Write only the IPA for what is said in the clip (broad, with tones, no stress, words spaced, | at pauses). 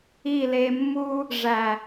i˦˨le˧mːu˦ | ʐæ˨